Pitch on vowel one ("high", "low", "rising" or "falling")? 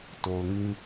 low